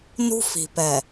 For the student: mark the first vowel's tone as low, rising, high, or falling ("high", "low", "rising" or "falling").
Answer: high